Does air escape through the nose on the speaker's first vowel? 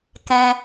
yes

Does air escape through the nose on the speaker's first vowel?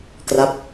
no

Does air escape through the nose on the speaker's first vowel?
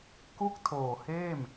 no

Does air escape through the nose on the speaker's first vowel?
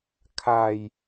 no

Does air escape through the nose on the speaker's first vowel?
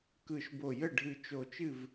no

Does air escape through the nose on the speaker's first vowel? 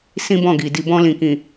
yes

